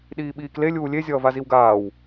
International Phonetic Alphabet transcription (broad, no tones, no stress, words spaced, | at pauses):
ɗiːɓiːkle lʲuːlʲe zʲʌːvaziwɡaːw